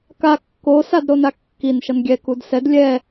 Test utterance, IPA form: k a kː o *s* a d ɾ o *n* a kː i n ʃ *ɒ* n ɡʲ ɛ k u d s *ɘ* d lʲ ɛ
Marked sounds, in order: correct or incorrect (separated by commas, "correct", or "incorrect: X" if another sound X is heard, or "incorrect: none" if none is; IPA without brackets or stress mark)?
correct, correct, incorrect: ʌ, incorrect: ɛ